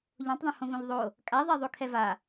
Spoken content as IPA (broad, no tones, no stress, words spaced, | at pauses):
ʎõtˤðˤõhõvõʎ ðˤo | kʼaðˤɛ ðˤokʰɛva